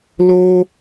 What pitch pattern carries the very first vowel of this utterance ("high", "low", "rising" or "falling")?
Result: high